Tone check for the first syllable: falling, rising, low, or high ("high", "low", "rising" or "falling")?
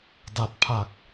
low